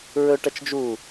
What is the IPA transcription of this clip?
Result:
ɹ ɵ ʈ ɐ t͡ʃ d͡ʒ u

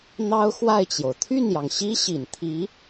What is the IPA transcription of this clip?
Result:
n̪ ɑ˥ ʊ̯ x w a˥˩ ɪ̯ t͡ɕ j o˩ ʊ̯ t̪ʰ y˥˩ n j ɑ˩ ŋ ɕ i˥ ɕ i˨˩ n t̪ʰ i˧˥

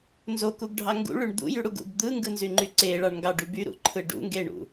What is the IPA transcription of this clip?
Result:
n z o k u ɡ ɖʱ ɑ ŋ ɡ ṵ ɭ y ɳ d̪ ṵ j y ɽ u ɡ ṵ b d̪ ɯ ŋ ɡ ɯ n z y ŋ͡ǃ y ǀ e ɭ ɑ ɳ ŋ ɡ ɑ ɖ y b y ɾ ṵ ǃʰ ɯ ɖ ṵ ŋ ɡ e ɳ ṵ

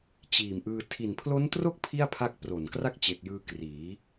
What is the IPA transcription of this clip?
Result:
t͡ɕ iː˨˩ m ʔ ɯː˧ tʰ i˨˩ n pʰ l o˦˥ n t r o˥˩ k̚ pʰ i˥˩ a̯ pʰ a˦˥ k̚ p r o˨˩ n k r a˥˩ k̚ t͡ɕ e˨˩ k̚ j ɯː˧ k r iː˩˦

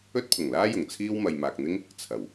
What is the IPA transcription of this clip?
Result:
ɵ˥ t̚ pʰ ʊ˨˩ ŋ l aː˥ j ʊ˨˩ ŋ t͡sʰ iː˥ w m ɐ˧ j m aː˧ k̚ n̪ ɪ˥ ŋ | t͡sʰ ɐ˨˩ w

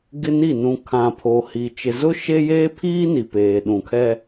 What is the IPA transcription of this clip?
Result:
ɡ ɪ˦ n i˦˨ n ũ˨ kʰ ã˨ pʰ o˨ h i˨ t͡ʃ ɪ˨ z ʊ˦ ʃ e˦ j eː˦ pʰ iː˦ n i˨ p eː˨ ɗ ũ˨ kʰ ɛ˦

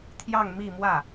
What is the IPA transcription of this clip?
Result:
t̪ʰ j ɑ˥˧ ŋ m i˥˧ m w ä˥˩

